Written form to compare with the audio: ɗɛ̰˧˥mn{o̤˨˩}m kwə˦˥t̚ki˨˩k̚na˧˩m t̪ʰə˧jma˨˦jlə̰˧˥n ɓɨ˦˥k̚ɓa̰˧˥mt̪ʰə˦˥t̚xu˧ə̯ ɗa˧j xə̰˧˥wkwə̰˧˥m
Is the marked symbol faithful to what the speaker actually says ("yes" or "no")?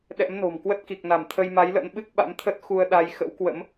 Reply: yes